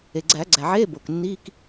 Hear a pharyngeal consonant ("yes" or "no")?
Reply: yes